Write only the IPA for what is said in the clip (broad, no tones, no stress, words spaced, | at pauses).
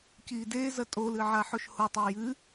ciːdezɐ tʼolɨ ʕaħoʃhotˤe jɨ